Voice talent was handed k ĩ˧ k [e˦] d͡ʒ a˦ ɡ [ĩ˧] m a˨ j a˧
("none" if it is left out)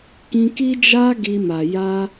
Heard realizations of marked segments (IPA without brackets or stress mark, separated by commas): i˦, i˧